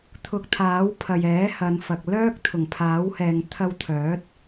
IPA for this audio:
t̪ʰ ʊ˨ k̚ t̪ʰ aː˨˥ w pʰ ɐ˨ j ɛː˨˥ h ɐ˨˧ n f ɐ˨ k̚ l œː˥ k̚ t̪ʰ ʊ˨˩ ŋ pʰ aː˨˥ w h ɛː˨ ŋ t̪ʰ ɐ˧ w t̪ʰ œː˨˥ t̚

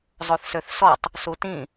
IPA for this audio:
zˤ o θ s ø θ s ɔ tˤ | s u t ĩ

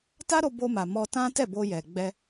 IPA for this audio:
t a˦ ɾ o˧ b o˧ m a˨ m ɔ˧ t ã˦ t ɛ˦˨ b o˧ j ɛ˨ ɡ͡b ɛ˧

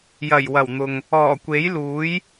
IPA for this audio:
j ɐ˨˩ j w ɐ˨˩ w n̪ ʊ˨ ŋ | ɔː˨˩ kʷ e˨˥ j l uː˨˥ j

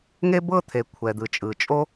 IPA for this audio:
ŋ e˥ b ɤ˥ t̪ʰ e˩ kʷʰ ɛ˩ d̪ ɯ˩ t͡ʃʼ ɯ˩ t͡ʃʼ o˥

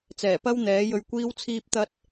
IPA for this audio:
t͡s ɛː˨˩ p ɐ˥ w n̪ ɛː˨˥ j ɵ˧ ɥ kʷ iː˥ w t͡sʰ iː˥ p̚ t̪ ɐ˥ t̚

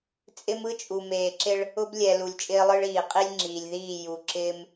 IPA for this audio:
t͡sʼ ɪ˦ m ɯ˦ t͡ʃʼ u˨ m eː˨ ǁ ɪ˦ ɭ | ʊ˦ b lʲ ɛ˨ l u˨ lʲ t͡ʃʼ ɪː˦ lˠ ɯ˦ ɭ iː˨ qʼ i˦ lʲ ŋ͡ǁ iː˨ lʲ ð iː˦˨ j u˨ ǁ ɪː˦ m

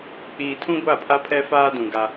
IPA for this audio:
k͡p iː˨ tʰ ũ˦ ɡʷ a˦˨ pʰ a˦ pʰ ɛ˦ f aː˦ d ũ˨ ɡ a˦

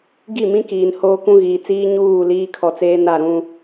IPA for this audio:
ɡ i˦˨ m ĩ˦ k iː˨ n h oː˦ k ũ˦ ɣ iː˨ t͡s iː˦ ɲ uː˦˨ l iː˦ kʰ ɔ˨ t͡s eː˦ n a˦˨ ɾ ũ˦

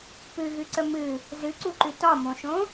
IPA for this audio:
p ɨ ɣ ɨ ǀ ə m ɨ | z ɨ ǀ u ǃ ʉ t ɒ m õ ʃ õ

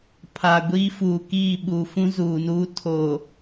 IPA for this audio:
pʰ a˨ ɡʷ iː˦ f uː˨ k iː˦˨ ɓ u˨ f ũ˦ z uː˨ n uː˦ tʰ o˨

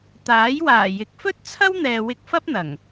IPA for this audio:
t̪ aː˨˥ j w aː˨˩ j ɪ˨˥ k̚ f ɵ˥ t̚ t͡sʰ ɐ˥ w n̪ ɛː˨ w ɪ˧ k̚ f ɐ˥ p̚ n̪ ɐ˨˩ ŋ

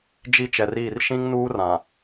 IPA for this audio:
d͡ʒ i˦ t͡ʃ ɛ˨ r iː˦˨ r ʃ ĩ˦ ŋ n uː˦ r ã˨

